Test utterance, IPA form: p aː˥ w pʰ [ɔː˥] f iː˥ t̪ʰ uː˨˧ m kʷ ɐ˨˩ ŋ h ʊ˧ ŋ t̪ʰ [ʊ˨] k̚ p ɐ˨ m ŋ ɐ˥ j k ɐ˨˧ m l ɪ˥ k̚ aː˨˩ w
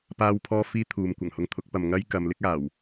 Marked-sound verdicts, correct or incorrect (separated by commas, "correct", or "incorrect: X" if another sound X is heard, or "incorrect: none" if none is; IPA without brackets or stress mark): correct, incorrect: ʊ˨˥